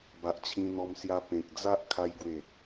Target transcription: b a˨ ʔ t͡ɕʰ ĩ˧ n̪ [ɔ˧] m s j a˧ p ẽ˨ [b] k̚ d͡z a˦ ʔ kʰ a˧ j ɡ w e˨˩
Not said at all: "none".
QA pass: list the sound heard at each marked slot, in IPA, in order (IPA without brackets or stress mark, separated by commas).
ɔ˧, none